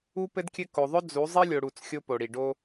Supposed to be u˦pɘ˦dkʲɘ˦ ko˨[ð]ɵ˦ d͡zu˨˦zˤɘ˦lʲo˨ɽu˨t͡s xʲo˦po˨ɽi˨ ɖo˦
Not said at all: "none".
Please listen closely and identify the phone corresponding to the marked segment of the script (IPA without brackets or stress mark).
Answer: ðˤ